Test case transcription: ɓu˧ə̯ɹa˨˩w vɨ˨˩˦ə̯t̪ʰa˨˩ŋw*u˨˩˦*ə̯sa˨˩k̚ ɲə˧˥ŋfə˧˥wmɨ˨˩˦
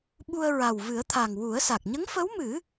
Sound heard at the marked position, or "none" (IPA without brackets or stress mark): u˨˩˦